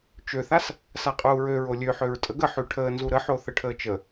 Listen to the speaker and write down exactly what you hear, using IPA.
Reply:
t͡ʃ ø θ a s | s a qʼ uː ɹ ø ɹ o lʲ ø ħ ø ɹ tʼ ə ɡ ə ħ y ʈʰ əː n z u ɾ ə ħ o θ ə ʈʰ əː t͡ʃ ə

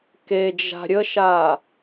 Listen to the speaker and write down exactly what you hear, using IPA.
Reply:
k e d͡ʒ a̤ ɾʲ ə ʃ a

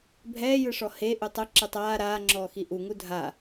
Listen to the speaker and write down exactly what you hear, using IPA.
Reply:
bʱ ɛː j ɯ ʂ ɔ h e ʔ u tˤ ɯ ǁ ɯ tˤ aː ɾ aː ŋ͡ǁ ɔː x i ʔ u ŋ u dʱ a

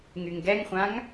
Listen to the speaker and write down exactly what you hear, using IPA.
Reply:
ŋ y ŋ ɡ ɛ ŋ χʷ ã ŋ

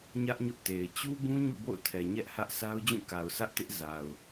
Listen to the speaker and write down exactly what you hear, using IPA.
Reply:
ɲ ä˦ ʔ ɲ ʊ˦ ʔ t e˨ ɪ̯ t͡ɕ u˦ b ũ˦ ɲ ṵ˦˨ b o̰˦˨ ʊ̯ tʰ ɛ˨ ɲ ɛ˦ ʔ h ä˦ ʔ sʰ a˦ ʊ̯ d͡ʑ ũ˦˨ k a˨ ʊ̯ s ä˦ ʔ t ɪ˦ ʔ z a˨ ʊ̯

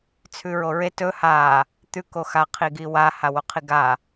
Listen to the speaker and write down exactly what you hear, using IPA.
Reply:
t͡sʰ ʉ ɹ o ɹ e t ɵ h a | t̪ ʉ k o x a qʰ i ɡ i w a h a w o qʰ i ɡ a

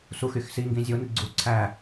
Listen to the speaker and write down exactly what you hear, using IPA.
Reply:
s u x y x s i ŋ ɡ ĩ zʲ o n i ɡ͡ǀ u ǀʰ æ

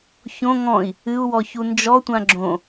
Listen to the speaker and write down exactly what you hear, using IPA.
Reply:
ç õ ŋ ɔ̃ i̯ | ɨ u̯ w ɔ ç u n d͡ʒ ɔ tʷ ã ɡ͡ǁ õ

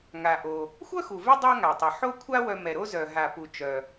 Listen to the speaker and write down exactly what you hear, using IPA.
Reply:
ŋ a˩ ʔ o˩ | xʷ œ˥ x u˩ v ɛ˦ dˤ a˥ ŋ a˩ tˤ ʌ˩ ħ o˦ kʷʰ a˦ w œ˨ m ɛ˩ ɾ o˦ z œ˩ ɦ a˩ p u˩ t͡ʃ œ˩

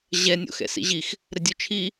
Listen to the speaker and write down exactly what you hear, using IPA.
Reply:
ʑ ɛ nʲ o̰ x ɛ̰ s ḭ ʑ i x | ɾ ɘ dʲ o t͡ʃʰ i

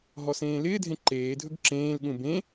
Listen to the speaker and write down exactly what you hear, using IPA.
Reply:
ɦ ɔ s ẽː l ɪː dʱ ẽ ǃ eː dʱ ɵ ɡ ǁ ẽː l ɠ ũ b ẽ

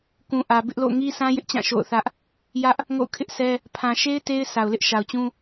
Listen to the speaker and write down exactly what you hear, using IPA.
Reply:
k ũ˨ ʔ ä˨ b ɪ˦ ʔ l o̰˦˨ ʊ̯ ŋ i˦ sʰ ã˦ j ɪ˦ ʔ t͡ɕ ã˦˨ ʃ o̰˦˨ ʊ̯ θ ä˦ ʔ | j ä˦ ʔ | ŋ o̰˦˨ ʊ̯ kʰ ɪ˦ ʔ sʰ ɛ˦ | pʰ ã˨ ʃ e˦ ɪ̯ t e˦ ɪ̯ sʰ a˨ ʊ̯ l ɪ˦ ʔ ʃ a˨ ʊ̯ t͡ɕ ũ˦

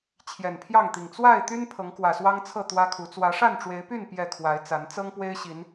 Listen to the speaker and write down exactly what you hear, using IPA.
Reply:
t͡ɕʰ j ɛ˨˩ n pʰ j ɑ˥˨ ŋ t̪ i˨˩ ŋ t͡s w a˥˨ ɪ̯ t̪ y˦ n pʰ ɤ˨˦ ŋ k w ä˨˩ s w ɑ˦ ŋ t͡sʰ ɤ˥˨ t̪ w ä˦ kʰ u˨˦ t͡s w ä˨˦ ʂ a˥˨ n ʈ͡ʂ w e˨˦ ɪ̯ p y˥˨ n p j ɛ˥˨ kʰ w a˨˦ ɪ̯ t͡s a˨˦ n t͡s ɤ˦ ŋ p w e˦ ɪ̯ ɕ i˨˦ n

